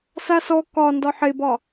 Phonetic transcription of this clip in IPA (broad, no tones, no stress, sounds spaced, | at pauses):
s a s ɔ k ɒ n d ɒ ħ e b ɒ